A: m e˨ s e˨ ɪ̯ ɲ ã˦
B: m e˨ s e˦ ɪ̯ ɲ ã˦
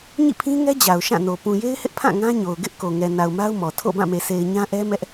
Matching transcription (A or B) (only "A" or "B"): A